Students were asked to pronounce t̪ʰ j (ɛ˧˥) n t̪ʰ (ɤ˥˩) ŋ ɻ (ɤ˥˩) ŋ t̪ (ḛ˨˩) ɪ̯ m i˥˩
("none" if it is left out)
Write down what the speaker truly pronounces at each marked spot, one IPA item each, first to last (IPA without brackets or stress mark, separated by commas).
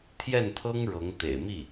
ɛ˥˩, ɤ˥, ɤ˧˥, ḛ˨˩